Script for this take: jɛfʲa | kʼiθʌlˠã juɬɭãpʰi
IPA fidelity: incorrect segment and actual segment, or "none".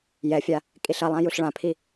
θ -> ɬ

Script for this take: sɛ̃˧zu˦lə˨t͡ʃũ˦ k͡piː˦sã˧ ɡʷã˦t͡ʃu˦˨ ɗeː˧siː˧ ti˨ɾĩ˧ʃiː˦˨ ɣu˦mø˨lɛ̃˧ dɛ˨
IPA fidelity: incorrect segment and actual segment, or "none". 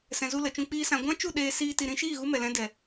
ø˨ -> ɛ˨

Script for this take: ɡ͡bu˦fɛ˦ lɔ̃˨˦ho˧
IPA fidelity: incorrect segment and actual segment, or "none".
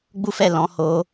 ɛ˦ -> ɛ˦˨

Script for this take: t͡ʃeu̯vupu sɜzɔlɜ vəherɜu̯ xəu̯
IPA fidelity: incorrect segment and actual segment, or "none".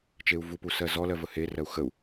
none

